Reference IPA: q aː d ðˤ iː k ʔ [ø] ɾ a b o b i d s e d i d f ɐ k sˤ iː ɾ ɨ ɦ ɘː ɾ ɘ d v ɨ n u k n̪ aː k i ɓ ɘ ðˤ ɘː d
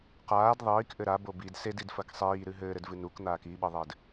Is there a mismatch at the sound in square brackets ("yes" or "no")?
yes